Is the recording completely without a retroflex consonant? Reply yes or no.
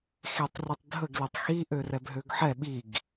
yes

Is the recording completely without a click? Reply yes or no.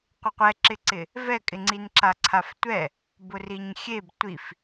no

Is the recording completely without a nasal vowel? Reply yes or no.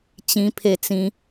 no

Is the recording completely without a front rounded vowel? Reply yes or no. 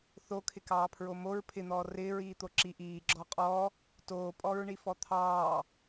yes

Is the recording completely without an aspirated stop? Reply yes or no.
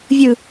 yes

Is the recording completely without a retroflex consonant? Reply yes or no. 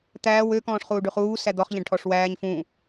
no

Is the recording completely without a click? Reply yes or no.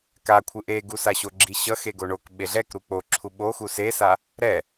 no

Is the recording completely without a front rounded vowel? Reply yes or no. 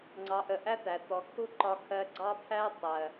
yes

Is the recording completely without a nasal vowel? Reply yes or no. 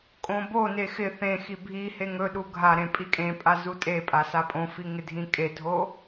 no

